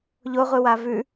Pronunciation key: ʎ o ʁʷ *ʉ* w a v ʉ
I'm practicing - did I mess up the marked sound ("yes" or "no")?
yes